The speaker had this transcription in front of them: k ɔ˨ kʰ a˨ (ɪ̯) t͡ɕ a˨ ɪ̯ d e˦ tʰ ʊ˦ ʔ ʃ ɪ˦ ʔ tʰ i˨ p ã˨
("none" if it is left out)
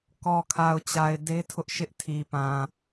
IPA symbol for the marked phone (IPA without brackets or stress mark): ʊ̯